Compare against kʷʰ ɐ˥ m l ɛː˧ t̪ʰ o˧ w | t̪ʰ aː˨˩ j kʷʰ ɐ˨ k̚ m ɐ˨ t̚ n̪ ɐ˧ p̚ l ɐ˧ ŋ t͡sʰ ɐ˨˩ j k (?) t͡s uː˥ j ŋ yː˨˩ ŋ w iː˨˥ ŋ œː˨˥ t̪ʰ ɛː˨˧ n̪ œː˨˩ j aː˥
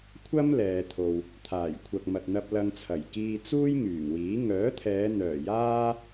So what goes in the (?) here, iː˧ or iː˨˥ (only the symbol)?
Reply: iː˧